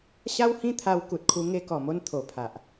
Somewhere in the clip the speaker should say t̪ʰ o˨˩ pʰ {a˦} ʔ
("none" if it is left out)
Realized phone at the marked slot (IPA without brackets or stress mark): a˨